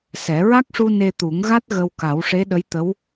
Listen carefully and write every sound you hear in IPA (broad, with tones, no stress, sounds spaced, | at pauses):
s ɛ˨˩˦ ɹ a˦˥ k̚ ʂ u˧ n e˧ t̪ u˨˩˦ ŋ ɣ a˦˥ t̚ ɣ ə˧ w k a˨˩˦ w ʂ e˧˥ ɗ ə˧˥ j t̪ ə˧˥ w